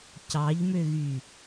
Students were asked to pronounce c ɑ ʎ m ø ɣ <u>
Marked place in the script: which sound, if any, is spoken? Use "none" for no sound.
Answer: y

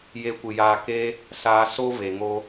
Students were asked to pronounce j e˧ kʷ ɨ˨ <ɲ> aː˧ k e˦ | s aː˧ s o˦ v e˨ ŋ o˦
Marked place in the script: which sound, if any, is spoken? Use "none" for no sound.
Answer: j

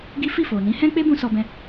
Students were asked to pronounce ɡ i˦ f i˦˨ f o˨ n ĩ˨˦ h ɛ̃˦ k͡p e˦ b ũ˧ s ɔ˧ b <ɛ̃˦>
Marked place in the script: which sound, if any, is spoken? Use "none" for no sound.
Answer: ɛ̃˧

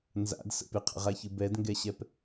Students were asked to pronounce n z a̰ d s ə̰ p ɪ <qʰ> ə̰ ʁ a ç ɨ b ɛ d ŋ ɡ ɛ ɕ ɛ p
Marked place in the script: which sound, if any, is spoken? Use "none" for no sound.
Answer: qʰ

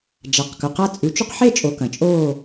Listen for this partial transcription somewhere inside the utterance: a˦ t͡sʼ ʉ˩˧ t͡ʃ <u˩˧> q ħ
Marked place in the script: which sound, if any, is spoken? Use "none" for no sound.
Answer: u˦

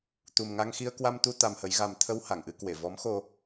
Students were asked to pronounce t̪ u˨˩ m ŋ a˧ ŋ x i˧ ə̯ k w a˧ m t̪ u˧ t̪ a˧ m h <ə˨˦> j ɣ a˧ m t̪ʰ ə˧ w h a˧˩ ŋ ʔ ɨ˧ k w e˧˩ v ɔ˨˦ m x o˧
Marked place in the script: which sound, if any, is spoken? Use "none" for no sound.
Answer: ə˨˦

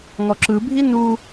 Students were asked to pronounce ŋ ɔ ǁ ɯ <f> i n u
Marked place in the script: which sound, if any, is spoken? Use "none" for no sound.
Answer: bʱ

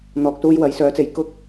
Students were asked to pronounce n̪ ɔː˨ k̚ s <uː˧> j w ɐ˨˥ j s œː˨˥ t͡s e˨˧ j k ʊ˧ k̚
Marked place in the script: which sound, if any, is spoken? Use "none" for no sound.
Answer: uː˧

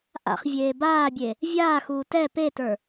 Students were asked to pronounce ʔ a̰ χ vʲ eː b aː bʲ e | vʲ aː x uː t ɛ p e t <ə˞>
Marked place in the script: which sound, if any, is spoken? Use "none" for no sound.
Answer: ə˞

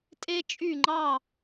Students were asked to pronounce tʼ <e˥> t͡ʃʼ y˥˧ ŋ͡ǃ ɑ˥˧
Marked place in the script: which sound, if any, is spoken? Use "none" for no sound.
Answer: e˥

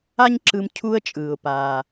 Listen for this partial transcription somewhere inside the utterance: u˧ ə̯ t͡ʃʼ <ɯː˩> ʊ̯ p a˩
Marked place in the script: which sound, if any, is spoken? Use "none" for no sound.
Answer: ɯː˩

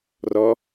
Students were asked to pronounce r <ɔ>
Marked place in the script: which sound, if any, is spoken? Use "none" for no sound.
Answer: ɔ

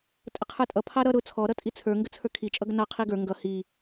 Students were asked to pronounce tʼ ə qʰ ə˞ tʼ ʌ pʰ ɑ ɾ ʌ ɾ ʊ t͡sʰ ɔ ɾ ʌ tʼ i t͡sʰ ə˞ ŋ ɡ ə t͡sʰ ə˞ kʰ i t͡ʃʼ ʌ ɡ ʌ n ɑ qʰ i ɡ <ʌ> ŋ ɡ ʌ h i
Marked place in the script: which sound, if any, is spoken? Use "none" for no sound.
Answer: ə˞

